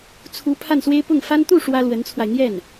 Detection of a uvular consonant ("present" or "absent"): absent